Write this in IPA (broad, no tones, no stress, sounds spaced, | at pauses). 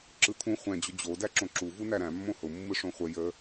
ǁ ɯ t̪ʰ ũ χʷ ɛ̃ d͡ʑ ʊ d͡ʑ o d æ ǁ õ ǁ u v u n æ ɾ æ̃ mː õ h ʊ mː ɯ ʂ õ χʷ ə j ə